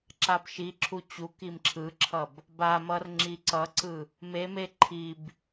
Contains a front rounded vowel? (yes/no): no